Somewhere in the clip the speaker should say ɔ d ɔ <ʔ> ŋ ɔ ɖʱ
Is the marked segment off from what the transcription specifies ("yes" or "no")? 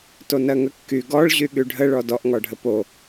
no